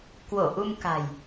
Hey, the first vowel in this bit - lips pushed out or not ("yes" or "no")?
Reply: yes